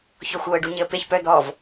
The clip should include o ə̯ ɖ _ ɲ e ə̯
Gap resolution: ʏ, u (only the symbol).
u